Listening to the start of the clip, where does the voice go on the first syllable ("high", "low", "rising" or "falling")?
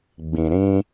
low